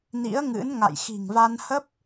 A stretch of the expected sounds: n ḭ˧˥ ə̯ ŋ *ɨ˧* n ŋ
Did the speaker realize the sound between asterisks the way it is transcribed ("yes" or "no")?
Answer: no